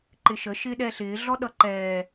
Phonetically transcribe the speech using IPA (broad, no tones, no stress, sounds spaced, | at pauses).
ǃ ɪ ʃ ə ʃ ɪː ɗ ɛ ɬ ɪː ɮ ɔ ɗ ʌ ǃ ɛː